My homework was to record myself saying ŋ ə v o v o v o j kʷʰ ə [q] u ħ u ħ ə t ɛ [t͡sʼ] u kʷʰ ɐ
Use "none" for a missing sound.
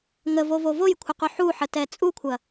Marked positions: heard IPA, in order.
q, t͡sʼ

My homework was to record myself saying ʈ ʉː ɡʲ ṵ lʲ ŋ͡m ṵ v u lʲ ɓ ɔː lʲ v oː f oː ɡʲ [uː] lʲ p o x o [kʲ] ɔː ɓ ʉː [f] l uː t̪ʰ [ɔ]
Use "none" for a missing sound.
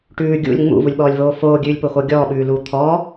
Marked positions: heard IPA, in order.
ʉː, ɡʲ, none, ɔː

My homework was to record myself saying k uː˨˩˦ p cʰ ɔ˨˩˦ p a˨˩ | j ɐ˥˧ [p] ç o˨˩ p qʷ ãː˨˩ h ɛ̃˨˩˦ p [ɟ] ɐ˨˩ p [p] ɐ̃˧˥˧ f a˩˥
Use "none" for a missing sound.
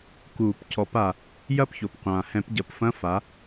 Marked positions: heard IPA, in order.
p, ɟ, f

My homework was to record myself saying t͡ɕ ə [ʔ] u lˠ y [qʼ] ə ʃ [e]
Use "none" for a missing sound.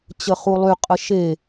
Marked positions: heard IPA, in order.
χ, qʼ, e

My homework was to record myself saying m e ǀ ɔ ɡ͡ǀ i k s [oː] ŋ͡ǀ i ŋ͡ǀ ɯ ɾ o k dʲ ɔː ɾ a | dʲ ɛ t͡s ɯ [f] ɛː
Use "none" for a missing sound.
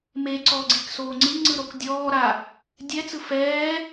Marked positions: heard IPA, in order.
oː, f

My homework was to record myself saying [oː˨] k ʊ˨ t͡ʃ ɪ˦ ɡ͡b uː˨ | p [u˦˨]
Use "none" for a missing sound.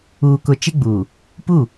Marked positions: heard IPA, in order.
uː˨, u˦˨

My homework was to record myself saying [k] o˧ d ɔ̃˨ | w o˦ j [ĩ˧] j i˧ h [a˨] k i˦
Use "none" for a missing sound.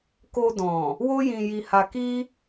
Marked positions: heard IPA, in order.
k, ĩ˧, a˧

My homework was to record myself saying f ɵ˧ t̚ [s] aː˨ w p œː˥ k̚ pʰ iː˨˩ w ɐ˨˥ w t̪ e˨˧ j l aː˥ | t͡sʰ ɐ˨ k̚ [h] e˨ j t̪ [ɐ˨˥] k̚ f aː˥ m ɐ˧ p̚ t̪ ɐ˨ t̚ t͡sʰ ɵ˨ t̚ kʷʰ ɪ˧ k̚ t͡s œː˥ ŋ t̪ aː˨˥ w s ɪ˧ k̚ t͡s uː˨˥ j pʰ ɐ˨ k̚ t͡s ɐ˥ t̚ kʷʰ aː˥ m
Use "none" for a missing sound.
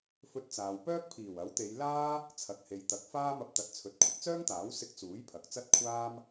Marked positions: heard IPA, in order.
t͡s, h, ɐ˨˥

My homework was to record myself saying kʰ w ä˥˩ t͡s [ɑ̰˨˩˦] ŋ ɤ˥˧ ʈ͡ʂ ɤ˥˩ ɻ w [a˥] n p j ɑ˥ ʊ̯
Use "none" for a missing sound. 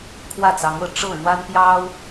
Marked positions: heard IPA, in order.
ɑ˧˥, a˥

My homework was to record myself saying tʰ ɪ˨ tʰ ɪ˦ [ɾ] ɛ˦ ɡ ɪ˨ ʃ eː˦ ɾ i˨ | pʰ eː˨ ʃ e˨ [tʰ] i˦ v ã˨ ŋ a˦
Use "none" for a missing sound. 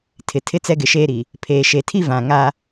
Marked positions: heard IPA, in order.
t͡s, tʰ

